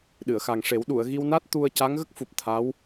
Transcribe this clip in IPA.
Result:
ɗ ɨ˨˩˨ ə̯ x a˨˩ ŋ ʂ e˨˩˦ w ɗ u˨˩˨ ə̯ ɣ i˧ w n a˦˥ t̚ t̪ u˧ ə̯ c a˧˥ ŋ ɣ ə˦˥ k̚ f u˨˩ p̚ t̪ʰ a˧˥ w

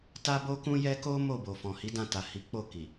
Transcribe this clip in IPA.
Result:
t a˦ b o˦ k ũ˦ j ɛ˦ k o˦ m o˦˨ b o˨ f ɔ̃˨ h i˨˦ d ã˧ t a˨ h i˨˦ k͡p o˦˨ k i˨

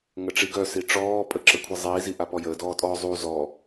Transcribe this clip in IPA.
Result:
ŋ ə ʈ͡ʂ i ɡ œ s i ʈ͡ʂ ɔː pʼ ə ǁ ə kʷʰ i zˤ iː z i ʔ a p ɔ j əː d ɔː tʼ ɔː zˤ u z ɔ

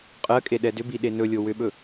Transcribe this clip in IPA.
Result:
qʼ ɜ kʼ e ɗ ɛ d ʏ b i ɗ e n ɵ lʲ o w ʏ ɓ ɵ

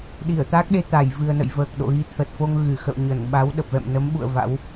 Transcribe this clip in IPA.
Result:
ɗ i˧˩ ə̯ t̪ a˦˥ k̚ ɗ e˧ t̪ a˧˩ j v ɨ˨˩ ə̯ n ə̰˧˨ j v əː˨˩ k̚ ɗ o̰˧˨ ɣ i˨˦ t̪ʰ ə˨˩ t̚ f o˧ ŋ ɣ ɨ˧˩ x ə̰˧˨ w ɲ ə˧˩ n ɓ a˨˦ w ɗ ə˨˩ p̚ v ɛ̰˧˨ m n ə˨˦ m ɓ ṵ˧˨ ə̯ v a̰˧˥ w

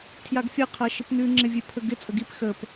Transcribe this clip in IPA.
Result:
tʰ j a ɡ fʲ ɐ qʰ ɐ ʃ ɪ p n ʉ ŋ͡ǁ ɪ vʲ e pʰ ə ɡ ɪ t͡sʼ ə ɡ i p x ə p

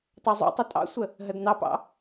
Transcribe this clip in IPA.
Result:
t ɑ zˤ ṵ tˤ ə tʼ ɑ̰ sʷ ə | ɦ ə d n̪ ɑ p ɑ̰

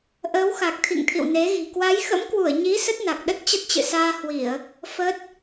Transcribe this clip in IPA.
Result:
ʔ əː˨˦ w x a˨˩ k̚ t̪ʰ ḭ˧˨ ŋ t̪ʰ ḭ˧˨ w n e˨˦ ɣ i̤˨˩ k w a˨˦ j x ə̰˧˥ m k w u˧˩ ə̯ ɲ i˨˦ s ə˦˥ t̚ n a˨˩ k̚ ɗ ə˦˥ t̚ t͡ɕ ə˦˥ t̚ t͡ɕ ɨ̰˧˨ s aː˧ h w i˧˩˨ ə̯ | f ə˦˥ t̚

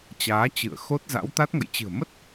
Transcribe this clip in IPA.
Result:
t͡ɕ aː˨˦ t͡ɕ ɨ̰˧˨ ə̯ x o˦˥ t̚ z a̰˧˥ w t̪ a˦˥ t̚ ŋ ə̰˧˨ j t͡ɕ ɨ̤˨˩ ə̯ m ə˦˥ t̚

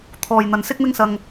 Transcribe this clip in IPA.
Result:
t̪ʰ ɔː˨ j n̪ ɐ˨ n s ɪ˥ k̚ m ɪ˥ ŋ s ɐ˧ ŋ

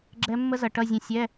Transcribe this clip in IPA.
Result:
ɡ͡ǁ ɛ˦˥ mː ə˦˥ z ʌ˩˧ ʈ ʌ˧˥˧ zʲ ə̃˧ sʲ ɛ˧˥˧

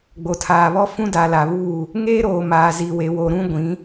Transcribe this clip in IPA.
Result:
ɡ͡b o˨ tʰ aː˨ β ɔ˦ f ũ˦ d a˨ l a˨ β uː˦˨ | ŋ eː˦ ɾ oː˨ m aː˨ z i˨ w e˨ w o˨ ɾ ũ˦ ɡʷ ĩ˨˦

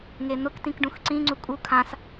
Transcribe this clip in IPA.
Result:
ŋ e n̪ ʊ k t ĩ k ɖ ũ x ǀ ĩ ŋ͡ǀ u kʼ u kʰ ã s

